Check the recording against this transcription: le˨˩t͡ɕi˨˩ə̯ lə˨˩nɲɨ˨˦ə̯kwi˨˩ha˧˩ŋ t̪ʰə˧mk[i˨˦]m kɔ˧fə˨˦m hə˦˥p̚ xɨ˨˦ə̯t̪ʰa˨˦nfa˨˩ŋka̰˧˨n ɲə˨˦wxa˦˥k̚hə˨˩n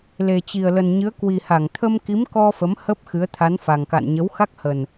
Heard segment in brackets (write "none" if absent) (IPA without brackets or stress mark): i˨˦